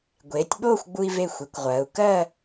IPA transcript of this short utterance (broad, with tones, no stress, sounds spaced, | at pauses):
ɡʷ eː˩˧ tʲ ɓ oː˥˧ xʷ ɡ͡b u˧ i̯ v e˧˩ xʷ e˩˧ kʷ ʁʷ ɜː˩˧ u̯ k ɜ˥˧